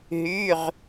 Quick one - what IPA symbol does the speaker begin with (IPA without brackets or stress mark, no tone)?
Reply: ɦ